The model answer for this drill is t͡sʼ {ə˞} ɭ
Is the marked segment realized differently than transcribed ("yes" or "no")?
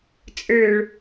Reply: no